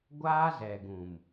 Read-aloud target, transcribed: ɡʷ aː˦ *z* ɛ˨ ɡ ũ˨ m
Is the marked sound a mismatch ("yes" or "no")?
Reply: no